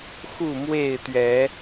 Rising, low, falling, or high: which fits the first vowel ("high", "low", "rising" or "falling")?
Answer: falling